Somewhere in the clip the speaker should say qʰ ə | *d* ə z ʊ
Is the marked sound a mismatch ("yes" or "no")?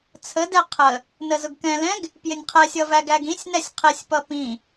yes